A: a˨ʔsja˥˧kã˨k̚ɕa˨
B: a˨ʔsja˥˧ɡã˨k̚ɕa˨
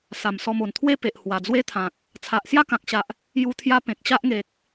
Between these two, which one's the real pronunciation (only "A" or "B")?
A